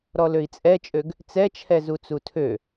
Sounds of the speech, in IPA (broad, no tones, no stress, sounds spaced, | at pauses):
ɾ ɔ l ø i̯ t͡sʼ ɛ t͡ʃʼ ø ɡ | t͡s ɛ t͡ʃʰ ɛ z u t͡s u tʰ ø